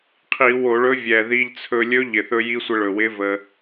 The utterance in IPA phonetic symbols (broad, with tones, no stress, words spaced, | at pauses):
qʰi˧˩˧wo˧˩˧ɭɵ˧˥ vʲɛ˨˩ði˧ʎt͡sʰɵ˧ lʲɵ˧˥ʎɪ˨˩θɵ˧ ji˧˥sʷɪ˧ɭɵ˨˩wɪ˧˥ və˧